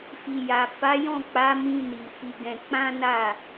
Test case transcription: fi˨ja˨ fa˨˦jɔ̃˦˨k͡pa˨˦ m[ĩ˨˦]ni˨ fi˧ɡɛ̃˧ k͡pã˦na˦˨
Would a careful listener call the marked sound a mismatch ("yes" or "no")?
yes